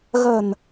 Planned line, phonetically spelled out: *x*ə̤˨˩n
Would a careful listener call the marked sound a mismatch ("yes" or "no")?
yes